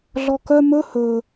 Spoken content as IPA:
ɮ ɔ k œ m ɵ h ɵ

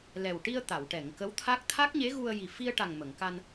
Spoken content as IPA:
l ɛ˨˩ w ʈ i˧ ə̯ t̪ a˨˩˨ w ʈ ɛ˨˩˨ ŋ k ə˧˥ w t̪ʰ a˦˥ k̚ t̪ʰ a˦˥ k̚ ɲ e˧˥ ɣ u˧ ə̯ j i˨˩ f i˧ ə̯ ʈ a˨˩ ŋ m ə˨˩˨ ŋ k a˧ n

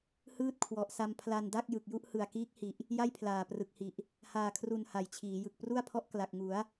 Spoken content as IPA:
h ɯː˥˩ t̚ kʰ w ɔ˨˩ ʔ s a˧ m pʰ l a˧ n d a˥˩ k̚ j ɯ˨˩ k̚ j u˥˩ ʔ h ɯ˨˩ a̯ k iː˦˥ k̚ h i˨˩ ʔ | j a˥˩ j pʰ l aː˨˩ p r ɯ˨˩ k̚ h i˨˩ ʔ | h aː˨˩ kʰ r u˨˩ n h a˨˩ j t͡ɕʰ iː˩˦ j ɯ˨˩ k̚ p r u˥˩ a̯ pʰ ɔ˦˥ ʔ k l a˨˩ k̚ ŋ u˩˦ a̯

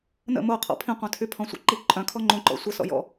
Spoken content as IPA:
n ə̰ m o qʰ ɔ̰ pʰ ĩ qʷ œ̃ tʰ y pʰ ɔ̃ sʷ ə̰ ǃ i ǃʼ œ̃ kʰ ɔ ŋ͡ǃ õ ǃ ɔ̰ sʷ ə s ɔ̰ j ɔ̰

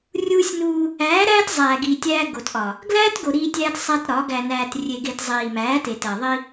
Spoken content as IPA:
rʲ uː˦ sʲ n uː˦ | æː˨˦ ɾ æː˦ t zˤ æː˨ ɡ iː˨ tʲ æː˦ ɡ o˨ t ʔ ɒ˨ | ɡ l æː˦ t ɡ o˨ ɾ iː˦ tʲ æː˦ t sˤ æ˦ t ɾ ɒ˨˦ ɡ æ˨ n æː˨ t rʲ e˨ ɡ e˨ t zˤ iː˨ m æː˨˦ t e˨ t æ˨ ðˤ i˦

